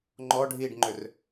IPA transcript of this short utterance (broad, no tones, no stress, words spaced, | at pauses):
ŋ͡ǃɔɖʱiːɖŋ͡ǃʏr